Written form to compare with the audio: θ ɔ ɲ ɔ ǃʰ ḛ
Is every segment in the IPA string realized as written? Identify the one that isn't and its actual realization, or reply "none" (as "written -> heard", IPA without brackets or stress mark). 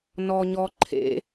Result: θ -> n